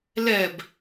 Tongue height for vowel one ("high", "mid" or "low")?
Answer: mid